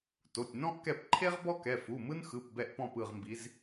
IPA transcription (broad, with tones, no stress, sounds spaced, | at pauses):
t o˩˧˩ tʲ n ɔ̃˥ ʔ k ɛ˦˨ p ǃʰ e˥ ʁ b ɔ˥ k ɛ˩˧˩ f u˩˧˩ m ɯ˥ n x ɯ˩˧˩ p b ɛ˦˨ ʔ p ɔ̃˦˨ p ɯ˦˨ ʁ m b i˨˦ z